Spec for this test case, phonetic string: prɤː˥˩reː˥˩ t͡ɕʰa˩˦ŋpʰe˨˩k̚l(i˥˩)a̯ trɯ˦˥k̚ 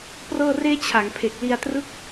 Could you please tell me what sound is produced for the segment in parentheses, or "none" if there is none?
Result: i˧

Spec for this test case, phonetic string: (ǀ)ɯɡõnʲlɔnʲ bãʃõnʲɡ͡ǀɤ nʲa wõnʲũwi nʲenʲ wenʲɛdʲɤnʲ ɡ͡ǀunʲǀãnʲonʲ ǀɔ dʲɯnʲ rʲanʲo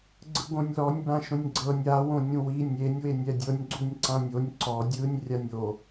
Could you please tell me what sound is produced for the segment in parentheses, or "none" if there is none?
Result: ɡ͡ǀ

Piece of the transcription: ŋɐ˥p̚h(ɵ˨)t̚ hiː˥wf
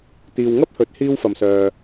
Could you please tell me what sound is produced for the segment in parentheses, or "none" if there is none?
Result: ɵ˨˥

